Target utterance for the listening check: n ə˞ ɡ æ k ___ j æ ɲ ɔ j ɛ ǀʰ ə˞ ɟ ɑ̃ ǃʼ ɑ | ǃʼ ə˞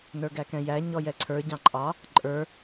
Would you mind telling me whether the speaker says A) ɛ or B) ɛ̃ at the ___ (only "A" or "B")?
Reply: B